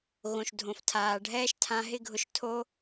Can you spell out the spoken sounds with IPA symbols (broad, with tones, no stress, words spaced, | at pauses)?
ɣõ˨ʃdʱõ˨ftʰaː˨ ɖʱɛː˥ʃtʰã˦ɦɪ˥ɡʱʊ˦ʃ tʰo˦